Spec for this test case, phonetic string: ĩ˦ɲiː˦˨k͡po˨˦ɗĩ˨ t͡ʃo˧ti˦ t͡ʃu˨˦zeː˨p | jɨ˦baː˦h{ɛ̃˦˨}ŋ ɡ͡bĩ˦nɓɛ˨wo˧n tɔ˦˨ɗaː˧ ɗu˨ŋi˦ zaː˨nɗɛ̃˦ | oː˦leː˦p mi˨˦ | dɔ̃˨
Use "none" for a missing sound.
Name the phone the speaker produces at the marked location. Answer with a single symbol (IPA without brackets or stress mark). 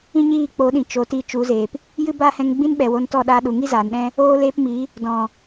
ɛ̃˧